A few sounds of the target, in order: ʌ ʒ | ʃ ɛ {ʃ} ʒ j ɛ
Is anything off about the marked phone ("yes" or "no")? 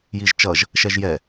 yes